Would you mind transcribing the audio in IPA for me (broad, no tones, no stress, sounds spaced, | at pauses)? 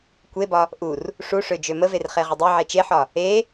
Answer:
kʷ e b ɒ | ʔ u r | ʂ u ʂ ø d͡ʒ ø m ə v e r χ e ʁ ə dˤ e ʕ e t͡ʃ e ħ ɒ | e